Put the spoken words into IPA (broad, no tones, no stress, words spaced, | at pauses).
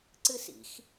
ǀɨsḭx